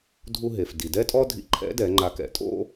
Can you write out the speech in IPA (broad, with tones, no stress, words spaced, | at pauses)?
dʱu˧ɦe˩f di˩dɛ˥tʼɔ˥ dʱḭ˧ǃʰɛ̰˧˥dɛ˩˧ ŋ͡ǃa˧kɛ̰˩˧ tʼo̰˥